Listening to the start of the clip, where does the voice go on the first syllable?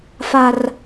low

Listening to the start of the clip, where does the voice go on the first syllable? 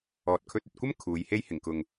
low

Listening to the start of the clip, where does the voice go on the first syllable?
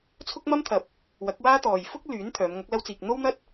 high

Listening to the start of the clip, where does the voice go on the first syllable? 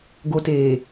low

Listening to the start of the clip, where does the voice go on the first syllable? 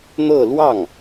falling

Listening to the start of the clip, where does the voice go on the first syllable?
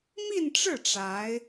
falling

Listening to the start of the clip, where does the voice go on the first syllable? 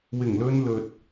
low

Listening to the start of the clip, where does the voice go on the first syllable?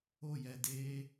falling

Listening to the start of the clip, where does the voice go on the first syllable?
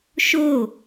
falling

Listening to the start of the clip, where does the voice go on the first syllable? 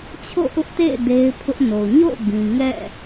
falling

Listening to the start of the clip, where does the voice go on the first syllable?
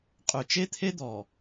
low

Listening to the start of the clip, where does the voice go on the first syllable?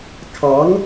rising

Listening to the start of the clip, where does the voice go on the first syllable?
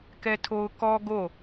high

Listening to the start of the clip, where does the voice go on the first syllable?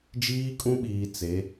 high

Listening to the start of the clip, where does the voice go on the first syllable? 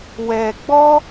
low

